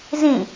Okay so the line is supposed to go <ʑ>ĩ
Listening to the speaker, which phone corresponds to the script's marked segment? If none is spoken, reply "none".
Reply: z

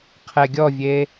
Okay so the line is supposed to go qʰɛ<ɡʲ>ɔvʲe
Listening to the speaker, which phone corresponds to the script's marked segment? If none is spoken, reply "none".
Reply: ɡʲ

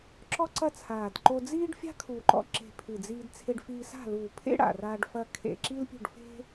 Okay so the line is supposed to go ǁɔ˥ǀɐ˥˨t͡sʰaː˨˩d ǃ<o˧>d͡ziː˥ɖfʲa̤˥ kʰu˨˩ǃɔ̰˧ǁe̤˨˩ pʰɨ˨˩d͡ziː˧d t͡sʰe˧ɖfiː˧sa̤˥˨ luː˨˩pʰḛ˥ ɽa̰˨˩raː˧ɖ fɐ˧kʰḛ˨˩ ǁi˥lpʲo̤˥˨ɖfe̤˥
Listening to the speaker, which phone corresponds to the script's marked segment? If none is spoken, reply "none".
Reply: o˧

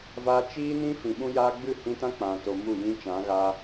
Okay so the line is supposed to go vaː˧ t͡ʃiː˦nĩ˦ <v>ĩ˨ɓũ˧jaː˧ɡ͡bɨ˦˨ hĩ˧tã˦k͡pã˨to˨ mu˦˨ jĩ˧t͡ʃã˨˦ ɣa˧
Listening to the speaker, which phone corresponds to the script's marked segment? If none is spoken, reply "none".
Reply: f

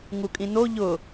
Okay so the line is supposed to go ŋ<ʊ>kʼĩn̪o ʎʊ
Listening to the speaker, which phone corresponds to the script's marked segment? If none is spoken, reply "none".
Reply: u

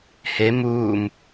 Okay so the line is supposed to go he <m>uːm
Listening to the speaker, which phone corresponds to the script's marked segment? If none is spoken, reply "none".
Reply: m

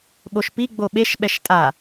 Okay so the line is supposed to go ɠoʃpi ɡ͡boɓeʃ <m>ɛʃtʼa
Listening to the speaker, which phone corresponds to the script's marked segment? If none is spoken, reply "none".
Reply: ɓ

